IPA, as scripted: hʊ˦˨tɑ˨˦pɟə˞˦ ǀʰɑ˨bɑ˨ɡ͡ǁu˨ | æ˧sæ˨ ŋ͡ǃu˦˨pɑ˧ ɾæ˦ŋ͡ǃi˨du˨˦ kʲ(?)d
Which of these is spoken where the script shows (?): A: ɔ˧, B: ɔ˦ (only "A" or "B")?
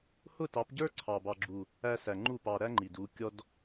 A